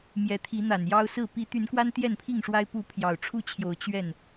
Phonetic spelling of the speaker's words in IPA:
m j ɛ˨˦ t̪ʰ i˨˦ n̪ a˨˩ n j ɑ˦ ʊ̯ s ɹ̩˥˨ p i˨˦ t̪ y˨˦ n k w a˦ n t̪ j ɛ˥˨ n pʰ i˥˨ ŋ ʂ w a˦ ɪ̯ p u˨˦ pʰ j ɑ˨˩ ʊ̯ ʈ͡ʂʰ u˥˨ t͡ɕʰ j o˨˦ ʊ̯ t͡ɕ ɥ ɛ˥˨ n

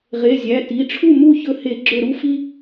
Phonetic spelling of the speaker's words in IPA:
ʁ e˩˧˩ zʲ æ˩˧˩ t i˩˧˩ ʈ͡ʂʰ u˥˨ m u˥˨ ç ɵ˧˩ h e˧˩˧ ɡ͡ǁ ɵ˧˩ ɾ u˥˨ f i˦

